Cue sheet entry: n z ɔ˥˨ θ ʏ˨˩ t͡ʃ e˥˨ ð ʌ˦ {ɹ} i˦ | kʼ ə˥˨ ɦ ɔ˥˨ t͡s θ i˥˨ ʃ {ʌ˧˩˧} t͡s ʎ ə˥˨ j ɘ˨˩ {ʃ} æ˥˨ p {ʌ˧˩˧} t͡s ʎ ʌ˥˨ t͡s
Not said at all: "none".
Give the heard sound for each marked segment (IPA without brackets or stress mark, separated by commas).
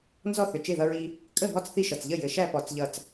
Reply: ɹ, ʌ˨˩, ʃ, ɔ˧˩˧